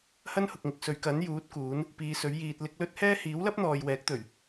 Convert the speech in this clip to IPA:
h ɐ˥ n h ʊ˨ k̚ ŋ ɪ˨ k̚ s ɵ˨˧ ɥ k ɐ˨˥ n j uː˨˥ t̚ k uː˨˥ n | p iː˨˧ s ɵ˨˥ ɥ j iː˧ t̚ l ɪ˧ k̚ l ɵ˥ t̚ h ɛː˥ h iː˨˥ w l ɐ˥ p̚ n̪ ɔː˨ j w ɛː˨˥ k̚ t̪ ɵ˨˩ ɥ

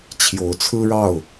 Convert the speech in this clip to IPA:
t͡ɕʰ j o˨˦ ʊ̯ t͡sʰ ɹ̩˦ ɻ ɑ˥˨ ʊ̯

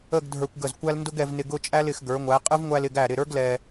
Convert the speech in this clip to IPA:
ə˥˧ ɡ dʱ ə˞˧ kʷ ɡ ə˧˩ z kʷ æ˥ l n d ʊ˥ ɡ ɛ˧ v n ɪ˧ ɡ ʊ˥˧ t͡ʃʼ æ˥ l ɪ˩˧ x ɡ ə˞˩˧ ŋʷ æ˩˧ qʼ ə˥ v ŋʷ æ˧ l ɪ˧˩ ɡ æ˧˩ ɾ ɪ˧˩ ɾ ə˞˥ ɡ l ɛ˧

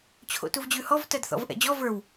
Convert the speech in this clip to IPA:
t͡ɕʰ o̰ t u v d͡ʑ ʉ h ɔ v t ɜ d θ ɔ̰ v ʔ ɛ̰ d͡ʑ ɔ v ə˞ w

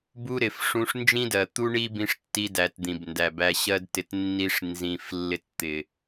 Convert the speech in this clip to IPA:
b u˦ ɾ ɪ˨ f ʂ ũ˧ ʂ n d͡ʒ ĩ˦ d ɜ˨ t̪ u˦ ɳ i˦ b ĩ˧ ʂ tː i˧ d æ˨ t d̪ ĩ˨ b n d æ˨ b æ˧ ɕ ɜ˦ d t ɪ˧ t nː i˧ ʂ n z ĩ˨ f lː ɪ˧ t t̪ ɪ˨

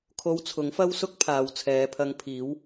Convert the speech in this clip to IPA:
kʰ o˧ w t͡sʰ ʊ˨˥ ŋ f ɐ˥ w s ʊ˥ k̚ pʰ aː˨ w t͡sʰ ɛː˨˧ pʰ ɐ˧ ŋ pʰ iː˨˥ w

